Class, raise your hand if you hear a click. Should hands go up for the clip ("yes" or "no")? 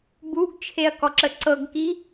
yes